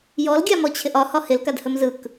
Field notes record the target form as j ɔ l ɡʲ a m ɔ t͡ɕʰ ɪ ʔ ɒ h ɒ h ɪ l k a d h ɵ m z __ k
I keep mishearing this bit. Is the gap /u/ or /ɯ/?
ɯ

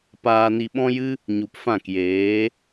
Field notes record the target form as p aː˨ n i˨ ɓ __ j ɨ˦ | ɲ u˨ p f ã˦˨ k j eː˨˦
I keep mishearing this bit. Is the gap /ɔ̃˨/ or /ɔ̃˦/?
ɔ̃˦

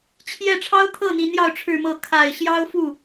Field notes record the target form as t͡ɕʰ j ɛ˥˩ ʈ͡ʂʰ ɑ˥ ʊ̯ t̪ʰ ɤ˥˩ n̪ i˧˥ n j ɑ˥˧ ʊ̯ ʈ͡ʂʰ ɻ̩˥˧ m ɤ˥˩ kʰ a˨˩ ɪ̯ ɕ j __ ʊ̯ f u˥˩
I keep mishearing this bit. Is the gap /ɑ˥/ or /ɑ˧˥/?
ɑ˥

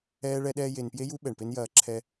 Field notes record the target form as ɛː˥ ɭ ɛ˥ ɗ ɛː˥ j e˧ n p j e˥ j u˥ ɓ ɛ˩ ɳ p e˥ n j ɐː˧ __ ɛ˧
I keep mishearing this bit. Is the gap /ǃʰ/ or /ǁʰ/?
ǁʰ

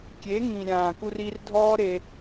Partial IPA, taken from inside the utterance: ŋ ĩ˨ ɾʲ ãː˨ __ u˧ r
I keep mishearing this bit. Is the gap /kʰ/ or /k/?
k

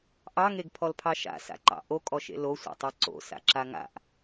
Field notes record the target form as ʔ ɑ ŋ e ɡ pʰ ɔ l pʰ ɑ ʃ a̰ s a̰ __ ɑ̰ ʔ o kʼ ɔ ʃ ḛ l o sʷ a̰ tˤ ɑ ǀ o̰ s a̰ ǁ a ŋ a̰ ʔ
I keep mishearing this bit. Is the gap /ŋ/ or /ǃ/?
ǃ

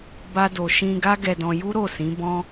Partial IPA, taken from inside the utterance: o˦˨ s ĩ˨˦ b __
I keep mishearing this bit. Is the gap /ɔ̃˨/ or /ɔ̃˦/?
ɔ̃˦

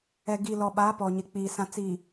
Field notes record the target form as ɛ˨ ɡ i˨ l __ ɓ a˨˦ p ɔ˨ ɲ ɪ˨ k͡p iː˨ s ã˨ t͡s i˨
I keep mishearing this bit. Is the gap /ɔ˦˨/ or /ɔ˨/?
ɔ˨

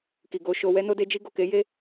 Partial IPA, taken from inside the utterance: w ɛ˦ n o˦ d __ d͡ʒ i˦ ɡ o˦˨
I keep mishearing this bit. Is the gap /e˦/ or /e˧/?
e˦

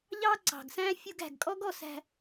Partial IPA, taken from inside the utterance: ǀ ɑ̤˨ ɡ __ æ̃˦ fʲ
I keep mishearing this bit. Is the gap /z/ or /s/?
s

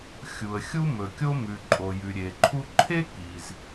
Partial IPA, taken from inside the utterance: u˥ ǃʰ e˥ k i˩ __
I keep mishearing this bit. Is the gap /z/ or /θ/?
z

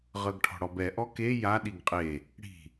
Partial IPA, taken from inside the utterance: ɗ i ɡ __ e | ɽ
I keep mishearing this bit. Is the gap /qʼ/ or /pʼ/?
qʼ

